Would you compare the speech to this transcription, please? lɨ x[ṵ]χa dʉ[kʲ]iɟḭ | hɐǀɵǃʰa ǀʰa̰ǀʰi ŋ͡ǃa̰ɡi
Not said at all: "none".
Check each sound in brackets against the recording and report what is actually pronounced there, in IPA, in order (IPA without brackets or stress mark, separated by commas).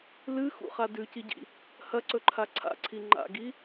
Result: ṵ, c